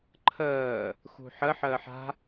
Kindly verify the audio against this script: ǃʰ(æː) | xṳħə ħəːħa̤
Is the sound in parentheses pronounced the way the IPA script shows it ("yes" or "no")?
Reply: no